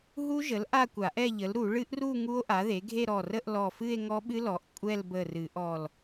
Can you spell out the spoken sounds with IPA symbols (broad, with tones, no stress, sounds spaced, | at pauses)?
ɦ u˦˥ ʒ ə˩˥ l ʔ a˥˧ kʷ a˨˩˦ ʔ ɛ˥˧ ʎ ə˩˥ l ɾ u˨˩˦ ɭ ɨ˦˥ ʔ r u˥˧ ŋ u˦˥ o̯ ʔ a˩˥ ð e˩˥ ɡʱ e˥˧ ɾ ɔ˧˩ r ə˥˧ ʔ l ɔ˧˩ f ɨ˥˧ e̯ ŋ ɔ˦˥ ɓ ɨ˦˥ l ɔ˩˥ ʔ kʷʼ ɛ˥˧ l b ə˧˩ r ɨ˨˩˦ ʔ ɔ˧˩ l